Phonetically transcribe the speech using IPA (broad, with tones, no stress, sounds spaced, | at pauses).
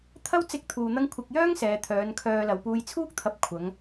t̪ʰ ɐ˥ w t͡s ɪ˥ k̚ t̪ʰ uː˧ n̪ ɐ˥ ŋ kʷʰ ɪ˧ k̚ j œː˥ ŋ s ɛː˨ t̪ʰ œː˨˧ n kʰ œː˧ l ɐ˨ w p uː˧ j t͡sʰ uː˥ k̚ t̪ʰ ɐ˧ p̚ kʷʰ ɐ˨˧ ŋ